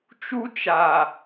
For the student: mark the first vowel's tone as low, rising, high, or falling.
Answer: high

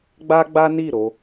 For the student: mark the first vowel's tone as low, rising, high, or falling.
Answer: high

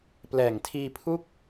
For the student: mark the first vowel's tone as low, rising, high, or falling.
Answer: low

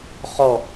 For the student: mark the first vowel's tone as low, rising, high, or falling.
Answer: falling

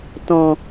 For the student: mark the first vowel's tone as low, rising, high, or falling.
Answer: low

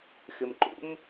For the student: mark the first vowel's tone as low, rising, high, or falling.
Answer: low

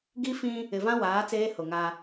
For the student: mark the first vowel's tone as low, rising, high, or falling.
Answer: high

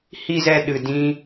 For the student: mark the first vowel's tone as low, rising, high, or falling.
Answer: low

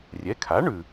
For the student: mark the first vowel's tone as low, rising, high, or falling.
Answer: rising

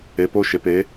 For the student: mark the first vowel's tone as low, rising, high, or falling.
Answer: rising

